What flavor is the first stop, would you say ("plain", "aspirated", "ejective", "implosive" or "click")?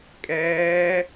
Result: ejective